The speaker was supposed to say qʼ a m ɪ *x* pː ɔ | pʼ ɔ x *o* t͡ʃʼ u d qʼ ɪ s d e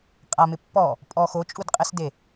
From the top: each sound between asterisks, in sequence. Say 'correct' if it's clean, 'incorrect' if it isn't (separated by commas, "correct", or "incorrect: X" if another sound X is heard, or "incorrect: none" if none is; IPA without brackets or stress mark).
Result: incorrect: none, correct